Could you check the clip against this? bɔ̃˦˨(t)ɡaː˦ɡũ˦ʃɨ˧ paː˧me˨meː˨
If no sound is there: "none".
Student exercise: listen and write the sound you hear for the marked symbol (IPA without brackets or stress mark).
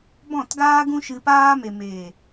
t